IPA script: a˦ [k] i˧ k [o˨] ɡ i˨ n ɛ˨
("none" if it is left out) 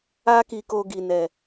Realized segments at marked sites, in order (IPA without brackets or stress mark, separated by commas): k, o˧